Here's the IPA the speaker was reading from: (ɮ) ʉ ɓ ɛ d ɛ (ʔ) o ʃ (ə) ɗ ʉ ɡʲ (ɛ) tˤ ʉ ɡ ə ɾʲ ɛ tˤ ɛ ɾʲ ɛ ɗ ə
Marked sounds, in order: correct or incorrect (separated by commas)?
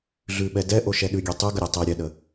correct, correct, incorrect, correct